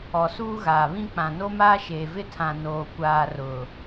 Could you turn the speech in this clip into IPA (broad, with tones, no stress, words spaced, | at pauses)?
ɔ˨suː˦ɣaː˨βĩ˦ k͡pã˨no˦maː˦ʃeː˨ vɪ˦tʰã˨ noː˨kʷaː˨ rʊ˨